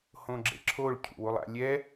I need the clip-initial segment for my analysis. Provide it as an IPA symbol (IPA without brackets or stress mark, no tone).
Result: h